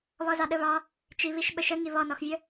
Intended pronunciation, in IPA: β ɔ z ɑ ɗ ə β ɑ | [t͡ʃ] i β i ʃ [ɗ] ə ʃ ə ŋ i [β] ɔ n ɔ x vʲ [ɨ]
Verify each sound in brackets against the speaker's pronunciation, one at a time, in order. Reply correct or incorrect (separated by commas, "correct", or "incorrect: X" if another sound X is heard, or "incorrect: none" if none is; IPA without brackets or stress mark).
correct, incorrect: ɓ, correct, incorrect: ə